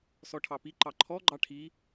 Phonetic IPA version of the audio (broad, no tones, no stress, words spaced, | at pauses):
sɔʈʰɑpi ǃɑǃʰɔ ɡ͡ǃɑʈʰi